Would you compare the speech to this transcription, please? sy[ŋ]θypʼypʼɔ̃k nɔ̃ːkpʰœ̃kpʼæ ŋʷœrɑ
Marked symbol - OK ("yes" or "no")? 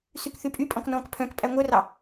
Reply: no